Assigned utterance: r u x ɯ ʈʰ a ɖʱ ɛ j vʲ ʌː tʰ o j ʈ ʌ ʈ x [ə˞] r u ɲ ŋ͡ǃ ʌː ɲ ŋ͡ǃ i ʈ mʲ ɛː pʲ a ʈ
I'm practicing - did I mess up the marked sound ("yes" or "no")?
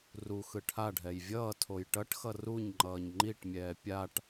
yes